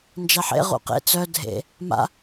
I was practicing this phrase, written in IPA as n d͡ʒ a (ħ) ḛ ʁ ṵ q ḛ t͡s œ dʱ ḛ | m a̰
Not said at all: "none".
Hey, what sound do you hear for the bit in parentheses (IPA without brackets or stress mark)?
ħ